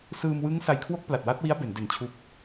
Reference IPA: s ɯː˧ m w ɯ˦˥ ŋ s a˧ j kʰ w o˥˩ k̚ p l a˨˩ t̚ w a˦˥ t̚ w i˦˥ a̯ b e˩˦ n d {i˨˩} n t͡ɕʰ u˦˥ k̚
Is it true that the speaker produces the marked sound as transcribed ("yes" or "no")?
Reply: no